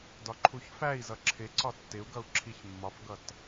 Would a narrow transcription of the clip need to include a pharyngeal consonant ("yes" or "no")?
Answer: no